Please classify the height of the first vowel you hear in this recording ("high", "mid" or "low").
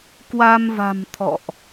low